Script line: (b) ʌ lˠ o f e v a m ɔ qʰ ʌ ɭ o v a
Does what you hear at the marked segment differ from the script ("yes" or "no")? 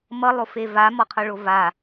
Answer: yes